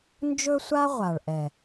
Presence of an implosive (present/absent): absent